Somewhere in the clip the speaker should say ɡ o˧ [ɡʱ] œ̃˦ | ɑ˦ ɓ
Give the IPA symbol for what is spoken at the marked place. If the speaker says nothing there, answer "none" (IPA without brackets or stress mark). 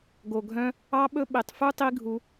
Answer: ɡʱ